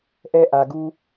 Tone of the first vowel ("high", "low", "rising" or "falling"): high